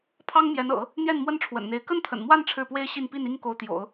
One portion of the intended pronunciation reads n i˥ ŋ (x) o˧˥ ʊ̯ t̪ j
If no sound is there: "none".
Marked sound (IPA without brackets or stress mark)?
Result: k